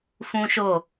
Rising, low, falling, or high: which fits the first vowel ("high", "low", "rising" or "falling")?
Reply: high